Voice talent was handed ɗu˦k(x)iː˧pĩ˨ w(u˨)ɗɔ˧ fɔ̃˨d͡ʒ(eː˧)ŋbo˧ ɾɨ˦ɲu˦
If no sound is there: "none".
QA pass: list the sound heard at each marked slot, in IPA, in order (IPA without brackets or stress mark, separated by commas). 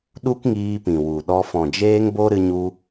ŋ, u˨, eː˧